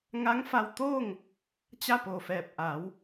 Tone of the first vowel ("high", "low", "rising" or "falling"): rising